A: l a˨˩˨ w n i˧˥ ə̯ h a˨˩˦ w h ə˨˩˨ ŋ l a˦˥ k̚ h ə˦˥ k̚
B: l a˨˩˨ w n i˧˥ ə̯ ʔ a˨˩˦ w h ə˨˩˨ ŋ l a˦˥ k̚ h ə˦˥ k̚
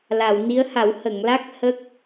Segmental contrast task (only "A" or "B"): A